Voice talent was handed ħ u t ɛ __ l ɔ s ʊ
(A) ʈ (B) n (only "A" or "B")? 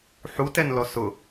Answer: B